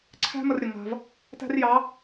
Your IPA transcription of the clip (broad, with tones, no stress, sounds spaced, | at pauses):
ǀʰ æ̤˥ m ə˧ r ɾʲ ə˩ ŋ a̤˧ v | t æ̤˥ r j ɑ˧˥